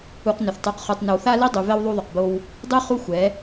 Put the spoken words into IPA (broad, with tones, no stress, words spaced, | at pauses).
u˨qnʏ˨θtˤu˨qχu˨tˤ nʏ˨wθa˦li˦dˤy˨ vɛ˦wðˤu˦ðˤʏ˨qbo˦w | dˤy˦ χu˦xʷɛ˨˦